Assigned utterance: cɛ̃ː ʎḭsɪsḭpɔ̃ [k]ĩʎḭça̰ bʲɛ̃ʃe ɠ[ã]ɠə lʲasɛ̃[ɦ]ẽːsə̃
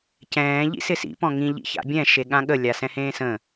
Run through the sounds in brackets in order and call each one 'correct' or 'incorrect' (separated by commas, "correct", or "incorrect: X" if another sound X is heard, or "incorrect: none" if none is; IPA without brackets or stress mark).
incorrect: ŋ, correct, incorrect: h